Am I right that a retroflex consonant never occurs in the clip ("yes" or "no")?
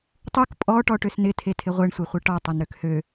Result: no